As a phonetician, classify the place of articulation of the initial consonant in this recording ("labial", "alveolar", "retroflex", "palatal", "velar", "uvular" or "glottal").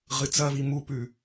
uvular